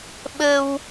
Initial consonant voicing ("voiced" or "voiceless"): voiced